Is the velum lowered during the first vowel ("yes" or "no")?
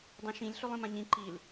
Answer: yes